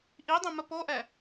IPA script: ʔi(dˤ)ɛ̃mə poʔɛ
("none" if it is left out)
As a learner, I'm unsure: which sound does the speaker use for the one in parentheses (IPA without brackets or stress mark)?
dˤ